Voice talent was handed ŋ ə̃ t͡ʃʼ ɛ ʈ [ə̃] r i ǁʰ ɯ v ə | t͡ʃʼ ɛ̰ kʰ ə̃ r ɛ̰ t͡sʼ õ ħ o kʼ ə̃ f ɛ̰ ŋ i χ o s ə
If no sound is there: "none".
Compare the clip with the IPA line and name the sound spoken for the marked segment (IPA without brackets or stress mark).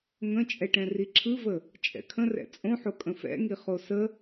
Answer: ɛ̃